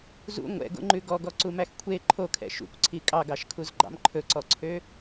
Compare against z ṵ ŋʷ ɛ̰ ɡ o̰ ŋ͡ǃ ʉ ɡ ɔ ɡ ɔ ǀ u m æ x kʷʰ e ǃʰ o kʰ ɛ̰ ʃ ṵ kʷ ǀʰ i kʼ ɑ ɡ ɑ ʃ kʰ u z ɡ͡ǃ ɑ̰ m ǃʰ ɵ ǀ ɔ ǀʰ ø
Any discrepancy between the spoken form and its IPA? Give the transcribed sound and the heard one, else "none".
none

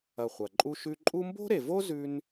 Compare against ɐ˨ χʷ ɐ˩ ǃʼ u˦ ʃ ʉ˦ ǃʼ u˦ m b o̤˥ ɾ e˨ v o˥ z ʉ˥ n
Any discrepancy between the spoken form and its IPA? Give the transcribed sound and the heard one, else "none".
none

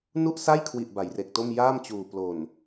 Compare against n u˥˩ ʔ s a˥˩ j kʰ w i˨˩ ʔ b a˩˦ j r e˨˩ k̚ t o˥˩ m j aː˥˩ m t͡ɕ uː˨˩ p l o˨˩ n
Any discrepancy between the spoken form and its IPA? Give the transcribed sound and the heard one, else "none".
none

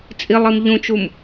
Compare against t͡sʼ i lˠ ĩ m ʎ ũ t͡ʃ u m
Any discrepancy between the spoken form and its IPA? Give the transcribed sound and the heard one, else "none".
ĩ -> i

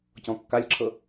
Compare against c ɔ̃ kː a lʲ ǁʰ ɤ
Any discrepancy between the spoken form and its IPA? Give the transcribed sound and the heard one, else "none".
none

